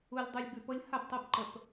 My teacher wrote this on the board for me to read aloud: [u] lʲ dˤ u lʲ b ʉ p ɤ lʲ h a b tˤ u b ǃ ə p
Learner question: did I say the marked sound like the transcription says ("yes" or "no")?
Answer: yes